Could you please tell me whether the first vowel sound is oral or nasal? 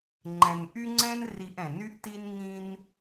nasal